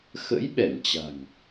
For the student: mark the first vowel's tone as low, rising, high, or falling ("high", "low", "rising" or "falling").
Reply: rising